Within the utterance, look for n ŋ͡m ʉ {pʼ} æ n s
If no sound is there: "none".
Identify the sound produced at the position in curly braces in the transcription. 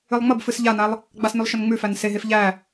f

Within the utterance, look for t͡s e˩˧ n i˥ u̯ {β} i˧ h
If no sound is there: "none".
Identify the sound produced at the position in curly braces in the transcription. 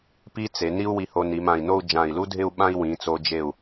w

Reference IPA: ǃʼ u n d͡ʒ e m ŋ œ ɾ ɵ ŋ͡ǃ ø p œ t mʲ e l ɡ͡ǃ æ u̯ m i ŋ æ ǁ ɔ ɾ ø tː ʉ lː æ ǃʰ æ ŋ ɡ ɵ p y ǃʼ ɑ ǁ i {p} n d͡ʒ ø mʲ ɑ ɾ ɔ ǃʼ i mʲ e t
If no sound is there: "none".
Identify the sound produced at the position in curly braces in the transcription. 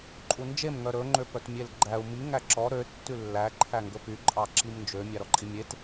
m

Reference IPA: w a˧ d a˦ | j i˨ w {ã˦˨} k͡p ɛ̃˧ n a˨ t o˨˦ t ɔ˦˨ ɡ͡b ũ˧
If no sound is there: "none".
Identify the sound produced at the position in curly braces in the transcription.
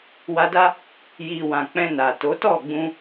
ã˨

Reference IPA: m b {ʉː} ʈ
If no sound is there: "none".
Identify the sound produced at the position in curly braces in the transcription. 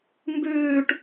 ʉː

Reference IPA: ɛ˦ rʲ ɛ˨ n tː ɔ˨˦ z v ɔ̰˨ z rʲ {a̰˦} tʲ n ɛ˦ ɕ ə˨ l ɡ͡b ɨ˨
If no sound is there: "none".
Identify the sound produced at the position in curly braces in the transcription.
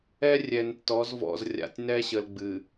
a̰˨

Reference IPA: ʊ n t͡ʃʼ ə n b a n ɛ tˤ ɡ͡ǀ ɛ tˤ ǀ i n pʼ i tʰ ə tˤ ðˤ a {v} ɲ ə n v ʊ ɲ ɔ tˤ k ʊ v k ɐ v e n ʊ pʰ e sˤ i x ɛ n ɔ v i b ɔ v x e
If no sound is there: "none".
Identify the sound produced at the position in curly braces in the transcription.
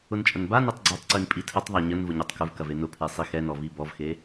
none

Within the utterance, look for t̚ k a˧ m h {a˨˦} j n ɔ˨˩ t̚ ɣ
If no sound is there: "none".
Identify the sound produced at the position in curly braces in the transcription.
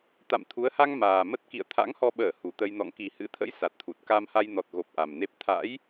a˧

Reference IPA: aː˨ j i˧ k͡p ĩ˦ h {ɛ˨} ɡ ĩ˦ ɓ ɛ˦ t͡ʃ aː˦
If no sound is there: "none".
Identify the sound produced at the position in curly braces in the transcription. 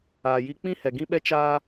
ɛ˨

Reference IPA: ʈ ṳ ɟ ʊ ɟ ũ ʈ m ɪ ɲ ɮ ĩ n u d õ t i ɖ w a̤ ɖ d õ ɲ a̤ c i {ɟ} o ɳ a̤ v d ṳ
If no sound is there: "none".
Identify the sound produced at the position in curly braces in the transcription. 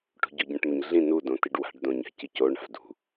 c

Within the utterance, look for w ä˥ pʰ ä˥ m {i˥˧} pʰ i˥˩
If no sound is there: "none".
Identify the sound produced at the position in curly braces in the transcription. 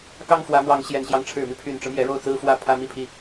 i˥˧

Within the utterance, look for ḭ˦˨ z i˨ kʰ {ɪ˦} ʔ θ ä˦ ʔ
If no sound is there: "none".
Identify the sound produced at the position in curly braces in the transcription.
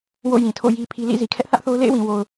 ɛ˦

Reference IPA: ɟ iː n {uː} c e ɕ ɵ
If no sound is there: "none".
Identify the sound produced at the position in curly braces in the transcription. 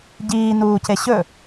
uː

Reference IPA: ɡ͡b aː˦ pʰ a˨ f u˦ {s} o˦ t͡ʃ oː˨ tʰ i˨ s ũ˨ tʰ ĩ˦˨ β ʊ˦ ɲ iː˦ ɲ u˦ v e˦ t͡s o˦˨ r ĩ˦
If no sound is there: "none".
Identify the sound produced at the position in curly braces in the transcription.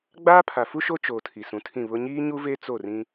ʃ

